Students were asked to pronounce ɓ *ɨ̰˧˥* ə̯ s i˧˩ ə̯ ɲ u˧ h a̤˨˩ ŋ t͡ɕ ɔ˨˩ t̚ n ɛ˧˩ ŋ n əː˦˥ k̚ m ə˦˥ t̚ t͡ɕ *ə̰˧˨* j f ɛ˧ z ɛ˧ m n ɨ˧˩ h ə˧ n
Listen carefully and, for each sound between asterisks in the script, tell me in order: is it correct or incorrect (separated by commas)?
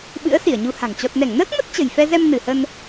correct, incorrect